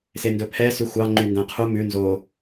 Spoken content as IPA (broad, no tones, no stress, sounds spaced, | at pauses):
s e n d ɵ pʰ ɛ s ʉ xʷ ɑ ŋ͡ǃ y n d æ̃ qʰ u m ʉ n z o